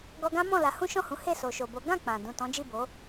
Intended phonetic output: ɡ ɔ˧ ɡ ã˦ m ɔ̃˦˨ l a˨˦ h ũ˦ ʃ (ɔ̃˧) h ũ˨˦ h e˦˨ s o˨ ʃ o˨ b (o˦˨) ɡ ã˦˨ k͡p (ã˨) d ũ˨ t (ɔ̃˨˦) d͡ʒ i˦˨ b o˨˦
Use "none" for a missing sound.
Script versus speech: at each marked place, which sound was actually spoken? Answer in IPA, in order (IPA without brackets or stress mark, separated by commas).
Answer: ɔ̃˦˨, o˨˦, ã˨, ɔ̃˨˦